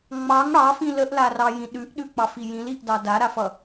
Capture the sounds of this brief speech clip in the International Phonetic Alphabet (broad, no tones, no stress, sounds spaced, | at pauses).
ŋ͡m ɑ ŋ ɽ ɑ f ĩ l ə ʔ l a r ɑ j ĩ ɗ ʉ ʔ ɗ ʉ k͡p ɑ f i j ĩ l i ʔ d ɑ d a ɾ a f ʌ